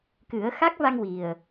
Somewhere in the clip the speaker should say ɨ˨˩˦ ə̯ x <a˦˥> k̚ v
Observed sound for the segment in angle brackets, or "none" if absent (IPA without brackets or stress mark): a˦˥